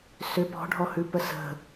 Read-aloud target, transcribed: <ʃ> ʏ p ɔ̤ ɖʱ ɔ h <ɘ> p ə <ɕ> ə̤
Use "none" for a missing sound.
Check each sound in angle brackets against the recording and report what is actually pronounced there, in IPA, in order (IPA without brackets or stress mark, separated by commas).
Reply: s, ʉ, s